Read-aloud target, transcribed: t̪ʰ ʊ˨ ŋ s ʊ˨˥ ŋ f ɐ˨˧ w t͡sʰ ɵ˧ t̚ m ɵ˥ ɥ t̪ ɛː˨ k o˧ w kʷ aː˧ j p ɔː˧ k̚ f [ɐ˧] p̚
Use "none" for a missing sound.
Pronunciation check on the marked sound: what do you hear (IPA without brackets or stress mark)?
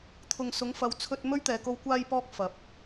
ɐ˨˥